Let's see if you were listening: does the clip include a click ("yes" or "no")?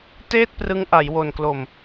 no